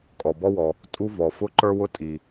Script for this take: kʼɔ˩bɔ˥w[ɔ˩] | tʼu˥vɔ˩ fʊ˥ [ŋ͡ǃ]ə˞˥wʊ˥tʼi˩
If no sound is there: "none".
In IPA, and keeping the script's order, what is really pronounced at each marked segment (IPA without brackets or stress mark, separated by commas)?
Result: ɔ˩, ǃ